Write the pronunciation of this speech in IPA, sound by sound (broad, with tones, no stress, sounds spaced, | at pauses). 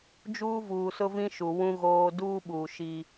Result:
d͡ʒ uː˦ v uː˨ s ʊ˦ v ĩ˦ ʃ u˨ w ũ˦ ɣ oː˦ d uː˦ ɓ uː˨ ʃ i˦